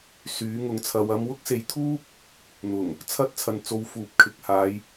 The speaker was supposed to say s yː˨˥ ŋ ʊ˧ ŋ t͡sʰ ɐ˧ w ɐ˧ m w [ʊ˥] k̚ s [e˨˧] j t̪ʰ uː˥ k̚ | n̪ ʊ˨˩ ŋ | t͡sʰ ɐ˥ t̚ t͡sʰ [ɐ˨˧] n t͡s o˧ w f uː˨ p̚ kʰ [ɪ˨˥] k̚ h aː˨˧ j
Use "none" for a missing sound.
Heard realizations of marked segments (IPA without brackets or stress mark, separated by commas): ʊ˥, e˨˧, ɐ˨, ɪ˨˥